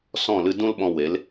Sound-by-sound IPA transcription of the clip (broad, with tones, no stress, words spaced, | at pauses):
sɔ̃˦˨ lɨ˦ dũ˦lɓɔ̃˧ we˨˦l